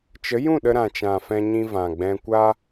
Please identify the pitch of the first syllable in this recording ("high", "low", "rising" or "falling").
rising